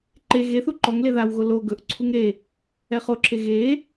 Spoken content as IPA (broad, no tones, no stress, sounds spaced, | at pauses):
ǃ e ɣ e θ u ǃ ɔ ŋ l e ð a w ɣ o l o ɡ ɵ ʔ ǀʰ u ŋ ɾ e | ɛ χ o ǁʰ e ɣ e